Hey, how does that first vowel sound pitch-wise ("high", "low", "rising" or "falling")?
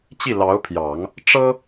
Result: falling